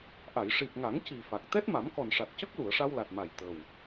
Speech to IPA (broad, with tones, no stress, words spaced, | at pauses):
ʔa˨˩˨jʂi˨˩p̚ŋa˨˩˦ŋ ci˨˩ fa˨˩k̚ t̪ɛ˦˥t̚ma˨˩˦mkɔ˨˩nʂa˨˩t̚ cə˦˥k̚lu˨˩˨ə̯ʂa˧w la˨˩t̚ma˨˩j t̪ə˨˩w